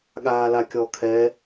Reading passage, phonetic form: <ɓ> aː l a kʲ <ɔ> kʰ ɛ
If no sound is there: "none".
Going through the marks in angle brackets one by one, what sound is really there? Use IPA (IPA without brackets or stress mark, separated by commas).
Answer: ɠ, ɔ